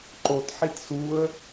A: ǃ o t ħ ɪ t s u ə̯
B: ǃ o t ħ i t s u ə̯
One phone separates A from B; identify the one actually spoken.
B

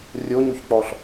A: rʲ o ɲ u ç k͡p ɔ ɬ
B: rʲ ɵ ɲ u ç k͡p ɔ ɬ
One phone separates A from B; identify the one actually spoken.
A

